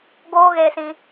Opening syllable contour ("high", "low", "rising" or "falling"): high